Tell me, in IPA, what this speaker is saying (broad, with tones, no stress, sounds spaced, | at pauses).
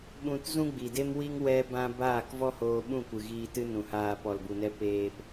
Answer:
ɓ ũ˧ t z ũ˦ ɡ͡b i˨ d e˦ m w i˦ ŋ w ɛ˦ b ã˦ b aː˦˨ k v ɔ˦ h oː˧ ɓ ũ˦˨ kʷ ɨ˨ ɣ iː˧ t ɨ˦ n ũ˨ h aː˧ p ɔ˨ l b u˨ n ɛ˧ p eː˧ p